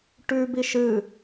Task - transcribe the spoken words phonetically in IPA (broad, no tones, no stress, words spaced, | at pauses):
ʈʉ biʃɨ